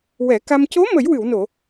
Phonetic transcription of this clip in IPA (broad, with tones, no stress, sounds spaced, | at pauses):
w ɛ˨˩˦ k a˧ m c o˧˥ m ə˨˩˦ j w ɨ˨˩˨ w n o˨˩˨